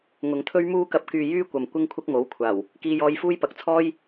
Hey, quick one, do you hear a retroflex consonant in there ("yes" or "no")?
no